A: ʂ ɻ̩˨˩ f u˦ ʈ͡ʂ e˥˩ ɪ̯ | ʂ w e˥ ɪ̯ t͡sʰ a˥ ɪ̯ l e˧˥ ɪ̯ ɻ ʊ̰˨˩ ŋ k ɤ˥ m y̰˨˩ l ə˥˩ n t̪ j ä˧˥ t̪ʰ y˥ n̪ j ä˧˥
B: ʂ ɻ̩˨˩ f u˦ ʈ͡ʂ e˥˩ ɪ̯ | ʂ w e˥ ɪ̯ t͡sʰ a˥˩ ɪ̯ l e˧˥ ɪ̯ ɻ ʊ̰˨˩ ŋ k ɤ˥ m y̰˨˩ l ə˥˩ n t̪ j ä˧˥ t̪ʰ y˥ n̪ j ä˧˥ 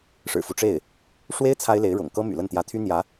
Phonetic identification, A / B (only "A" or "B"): A